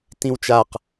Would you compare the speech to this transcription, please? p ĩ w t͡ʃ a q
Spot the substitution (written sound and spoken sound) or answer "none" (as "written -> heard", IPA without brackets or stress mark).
p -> t